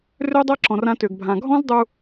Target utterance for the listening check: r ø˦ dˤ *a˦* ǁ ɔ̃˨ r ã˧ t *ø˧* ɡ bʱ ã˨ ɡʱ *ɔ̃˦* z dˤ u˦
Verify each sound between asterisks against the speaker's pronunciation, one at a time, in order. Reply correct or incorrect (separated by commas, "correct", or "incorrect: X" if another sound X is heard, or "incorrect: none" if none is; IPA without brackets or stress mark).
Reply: correct, incorrect: ø˨, correct